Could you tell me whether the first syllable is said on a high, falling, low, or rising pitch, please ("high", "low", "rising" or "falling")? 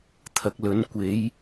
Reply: low